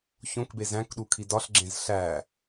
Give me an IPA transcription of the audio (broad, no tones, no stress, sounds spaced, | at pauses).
ç õ k b e z æ̃ k ɗ u kʰ i d ɒ ɬ ɡ͡ǁ ẽ z ɬ æ